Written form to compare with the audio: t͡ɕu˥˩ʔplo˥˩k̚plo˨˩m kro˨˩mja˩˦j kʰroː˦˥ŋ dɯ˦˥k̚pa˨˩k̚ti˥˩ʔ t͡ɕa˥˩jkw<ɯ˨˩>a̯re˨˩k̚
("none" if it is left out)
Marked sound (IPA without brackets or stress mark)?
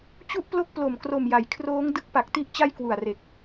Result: u˨˩